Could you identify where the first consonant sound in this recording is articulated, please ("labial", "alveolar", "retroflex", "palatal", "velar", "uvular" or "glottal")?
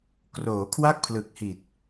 velar